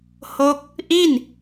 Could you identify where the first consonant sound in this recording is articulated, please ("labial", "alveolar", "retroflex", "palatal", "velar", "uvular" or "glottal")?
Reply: glottal